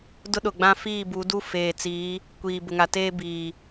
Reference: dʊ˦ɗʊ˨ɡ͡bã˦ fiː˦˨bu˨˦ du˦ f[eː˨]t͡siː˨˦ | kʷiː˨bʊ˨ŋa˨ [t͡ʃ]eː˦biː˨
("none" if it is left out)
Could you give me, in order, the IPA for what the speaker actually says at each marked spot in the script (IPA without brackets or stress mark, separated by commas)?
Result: eː˨, t